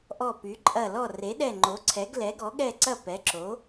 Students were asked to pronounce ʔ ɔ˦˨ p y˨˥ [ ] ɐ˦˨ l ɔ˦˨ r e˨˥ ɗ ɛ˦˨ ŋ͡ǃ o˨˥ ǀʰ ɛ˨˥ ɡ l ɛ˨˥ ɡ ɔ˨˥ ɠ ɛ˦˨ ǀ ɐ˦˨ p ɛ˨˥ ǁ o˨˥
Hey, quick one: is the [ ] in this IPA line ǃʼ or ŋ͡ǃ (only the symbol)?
ǃʼ